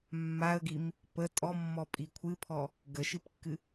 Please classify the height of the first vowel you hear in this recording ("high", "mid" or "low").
low